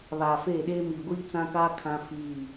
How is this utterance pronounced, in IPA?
β aː˨ f eː˦˨ ɗ eː˦ m iː˨ ɡʷ iː˦ t͡s ã˦ k aː˦ kʰ ã˦ f iː˦˨

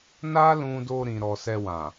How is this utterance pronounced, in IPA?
n a˦ l ũ˧ d o˧ ɾ ĩ˨ ɾ ɔ˨ s ɛ˧ w ã˨

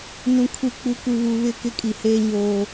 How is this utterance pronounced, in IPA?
n ũ˨ kʰ u˨ k͡p u˨ k u˨ β u˨ β ɪ˦˨ k ɪ˦ kʼ i˨ h eː˦ ɲ oː˦

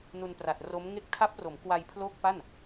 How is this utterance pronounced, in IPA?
n u˧ n p r a˨˩ t̚ r o˦˥ m ŋ e˥˩ k̚ tʰ a˦˥ p̚ r o˩˦ m k w a˧ j pʰ l o˦˥ k̚ p a˥˩ n

